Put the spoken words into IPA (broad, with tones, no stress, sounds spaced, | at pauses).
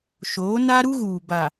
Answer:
ʃ oː˨˦ n a˦ ɾ u˦ ɣ uː˨ b a˨